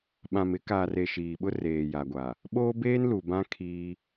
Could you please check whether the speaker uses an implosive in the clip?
yes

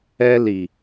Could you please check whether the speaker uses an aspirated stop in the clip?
no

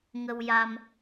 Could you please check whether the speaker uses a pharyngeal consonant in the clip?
no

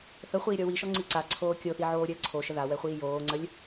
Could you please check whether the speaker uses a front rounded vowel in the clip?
no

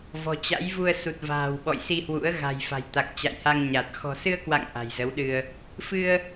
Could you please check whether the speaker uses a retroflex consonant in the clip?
no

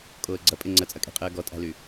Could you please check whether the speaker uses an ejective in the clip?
yes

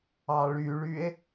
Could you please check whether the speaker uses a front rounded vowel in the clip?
yes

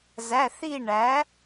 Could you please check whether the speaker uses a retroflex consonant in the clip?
yes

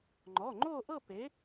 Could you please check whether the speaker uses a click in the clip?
yes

